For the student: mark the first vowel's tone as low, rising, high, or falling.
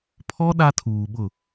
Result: high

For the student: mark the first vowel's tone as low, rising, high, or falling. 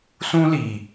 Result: high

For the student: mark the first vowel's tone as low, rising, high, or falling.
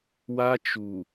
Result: high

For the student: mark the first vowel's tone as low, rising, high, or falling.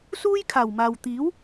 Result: high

